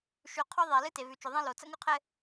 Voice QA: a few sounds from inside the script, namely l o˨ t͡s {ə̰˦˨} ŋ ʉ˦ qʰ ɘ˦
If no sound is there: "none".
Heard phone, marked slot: ə̰˦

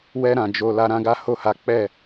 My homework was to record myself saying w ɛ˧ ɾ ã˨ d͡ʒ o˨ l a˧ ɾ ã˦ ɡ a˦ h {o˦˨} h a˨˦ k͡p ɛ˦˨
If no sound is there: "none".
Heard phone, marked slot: o˦˨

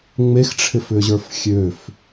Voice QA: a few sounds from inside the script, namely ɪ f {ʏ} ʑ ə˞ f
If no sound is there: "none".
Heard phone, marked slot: ʏ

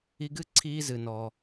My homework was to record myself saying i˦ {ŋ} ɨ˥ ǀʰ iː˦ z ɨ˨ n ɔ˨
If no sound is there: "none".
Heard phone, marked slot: ɡ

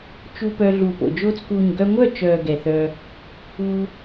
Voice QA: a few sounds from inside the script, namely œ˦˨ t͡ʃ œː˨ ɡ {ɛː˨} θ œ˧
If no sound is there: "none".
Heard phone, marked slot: ɛ˨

